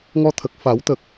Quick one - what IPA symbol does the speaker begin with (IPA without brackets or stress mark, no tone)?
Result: ŋ